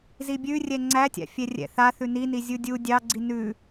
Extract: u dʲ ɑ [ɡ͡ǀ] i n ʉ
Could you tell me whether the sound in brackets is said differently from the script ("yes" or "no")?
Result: no